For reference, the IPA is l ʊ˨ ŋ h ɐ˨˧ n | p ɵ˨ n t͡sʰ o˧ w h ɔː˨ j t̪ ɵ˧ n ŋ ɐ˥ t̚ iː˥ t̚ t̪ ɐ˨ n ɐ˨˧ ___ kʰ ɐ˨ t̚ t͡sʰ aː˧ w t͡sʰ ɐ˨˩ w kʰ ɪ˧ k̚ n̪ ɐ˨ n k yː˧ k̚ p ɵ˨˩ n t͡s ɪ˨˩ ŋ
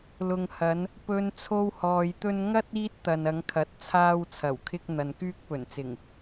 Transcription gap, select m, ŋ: ŋ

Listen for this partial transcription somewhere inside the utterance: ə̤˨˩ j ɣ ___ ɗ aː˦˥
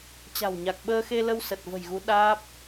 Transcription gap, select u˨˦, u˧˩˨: u˨˦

